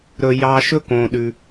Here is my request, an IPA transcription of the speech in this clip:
ɾ ɵ˩ j ɑ˨ ʃ ɵ˥ k õ˩ ɗ ʉ˩

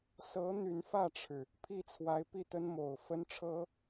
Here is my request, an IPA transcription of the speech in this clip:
s ɤ˧˥ n̪ y˧˥ n f ä˥˩ ʈ͡ʂʰ ɻ̩˩ | pʰ i˥˩ t͡sʰ w a˧˥ ɪ̯ p i˥˩ t̪ ə˥ n m o˨˩ ʊ̯ f ə˥ n ʈ͡ʂʰ ɤ˥

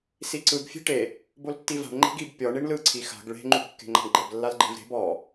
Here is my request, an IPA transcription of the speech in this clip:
s i ǀ ɯ ɡ fʲ e̤ ʈ e | b o l tː i v a̤ ɳ ŋ͡ǃ e̤ ɡ i b pʲ ɔ ɳ i ɳ l ɯ ǀʰ i x a̤ ɡ ɭ e̤ ŋ͡ǃ u b kː e̤ ŋ͡ǃ a̤ ɳ ɡ͡ǃ ɛ b lː a l ɡ͡ǃ e̤ v ɾ e̤ b ɔ

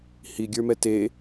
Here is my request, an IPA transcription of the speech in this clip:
h i ɡʲ ə˞ m ɛ t e

